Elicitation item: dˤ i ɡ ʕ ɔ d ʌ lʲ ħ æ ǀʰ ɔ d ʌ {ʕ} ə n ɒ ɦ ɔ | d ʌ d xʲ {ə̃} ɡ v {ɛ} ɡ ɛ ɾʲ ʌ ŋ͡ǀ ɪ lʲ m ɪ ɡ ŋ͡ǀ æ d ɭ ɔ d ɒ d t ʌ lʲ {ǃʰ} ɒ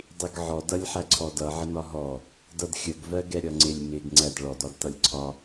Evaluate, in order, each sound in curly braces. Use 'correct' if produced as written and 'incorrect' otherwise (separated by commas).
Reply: correct, incorrect, incorrect, incorrect